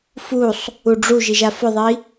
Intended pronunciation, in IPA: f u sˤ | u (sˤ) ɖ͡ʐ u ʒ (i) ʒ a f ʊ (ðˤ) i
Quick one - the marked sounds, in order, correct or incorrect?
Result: incorrect, correct, correct

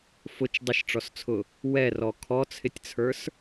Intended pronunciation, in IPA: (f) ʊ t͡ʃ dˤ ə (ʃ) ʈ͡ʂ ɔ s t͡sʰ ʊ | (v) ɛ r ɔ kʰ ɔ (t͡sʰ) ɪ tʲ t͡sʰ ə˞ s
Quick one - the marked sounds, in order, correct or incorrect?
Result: correct, correct, incorrect, correct

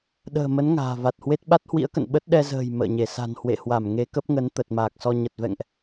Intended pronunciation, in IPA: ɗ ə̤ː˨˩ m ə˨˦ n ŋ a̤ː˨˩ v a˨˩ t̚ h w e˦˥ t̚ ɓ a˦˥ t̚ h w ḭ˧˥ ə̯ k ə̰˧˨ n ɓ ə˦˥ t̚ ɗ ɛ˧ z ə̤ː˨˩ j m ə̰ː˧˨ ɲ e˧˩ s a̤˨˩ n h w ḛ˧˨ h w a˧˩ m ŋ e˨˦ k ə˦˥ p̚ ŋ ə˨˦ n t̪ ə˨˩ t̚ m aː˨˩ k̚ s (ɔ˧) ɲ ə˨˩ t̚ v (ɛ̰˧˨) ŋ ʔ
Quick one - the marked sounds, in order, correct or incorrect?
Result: correct, correct

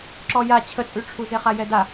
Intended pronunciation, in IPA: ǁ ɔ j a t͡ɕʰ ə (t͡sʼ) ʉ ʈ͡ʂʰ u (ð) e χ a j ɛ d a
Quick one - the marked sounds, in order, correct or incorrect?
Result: correct, incorrect

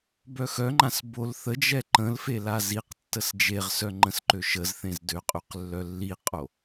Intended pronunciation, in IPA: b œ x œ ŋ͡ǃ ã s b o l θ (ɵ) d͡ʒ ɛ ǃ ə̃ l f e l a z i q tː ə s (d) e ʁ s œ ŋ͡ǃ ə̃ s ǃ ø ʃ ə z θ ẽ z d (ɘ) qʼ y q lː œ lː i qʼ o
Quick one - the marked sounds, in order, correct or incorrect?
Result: incorrect, incorrect, incorrect

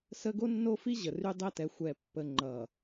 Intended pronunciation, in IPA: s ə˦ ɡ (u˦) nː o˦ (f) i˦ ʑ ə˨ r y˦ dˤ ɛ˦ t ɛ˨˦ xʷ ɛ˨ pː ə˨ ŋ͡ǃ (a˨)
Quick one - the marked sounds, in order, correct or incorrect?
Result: incorrect, correct, incorrect

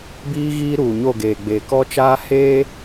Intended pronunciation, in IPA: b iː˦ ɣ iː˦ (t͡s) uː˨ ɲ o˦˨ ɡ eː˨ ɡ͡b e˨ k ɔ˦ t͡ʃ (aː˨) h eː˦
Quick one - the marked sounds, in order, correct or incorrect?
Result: incorrect, incorrect

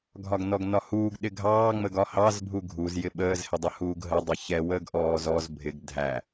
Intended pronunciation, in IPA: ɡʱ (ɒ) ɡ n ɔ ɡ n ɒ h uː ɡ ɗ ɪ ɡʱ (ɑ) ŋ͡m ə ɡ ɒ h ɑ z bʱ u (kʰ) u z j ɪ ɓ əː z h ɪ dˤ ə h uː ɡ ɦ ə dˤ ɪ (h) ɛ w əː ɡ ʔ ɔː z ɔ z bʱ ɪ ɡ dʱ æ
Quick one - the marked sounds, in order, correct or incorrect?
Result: correct, incorrect, incorrect, incorrect

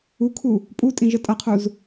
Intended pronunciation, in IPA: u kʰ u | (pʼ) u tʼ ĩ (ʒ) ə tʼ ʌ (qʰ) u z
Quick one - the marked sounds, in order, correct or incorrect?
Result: correct, correct, correct

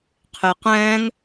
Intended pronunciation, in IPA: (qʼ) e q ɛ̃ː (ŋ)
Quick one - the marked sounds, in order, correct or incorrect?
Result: incorrect, correct

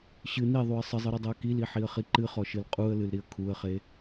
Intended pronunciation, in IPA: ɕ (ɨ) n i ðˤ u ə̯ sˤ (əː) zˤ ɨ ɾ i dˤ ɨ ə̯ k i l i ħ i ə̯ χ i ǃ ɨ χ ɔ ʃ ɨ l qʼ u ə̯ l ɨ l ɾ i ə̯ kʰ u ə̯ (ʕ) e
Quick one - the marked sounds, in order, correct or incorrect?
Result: correct, incorrect, incorrect

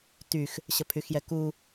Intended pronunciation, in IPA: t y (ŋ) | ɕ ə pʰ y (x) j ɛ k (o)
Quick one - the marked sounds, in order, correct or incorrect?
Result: incorrect, correct, incorrect

